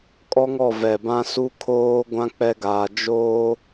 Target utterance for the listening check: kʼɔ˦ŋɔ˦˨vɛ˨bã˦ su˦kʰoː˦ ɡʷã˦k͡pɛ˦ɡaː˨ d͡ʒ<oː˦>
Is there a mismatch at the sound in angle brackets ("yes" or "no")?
no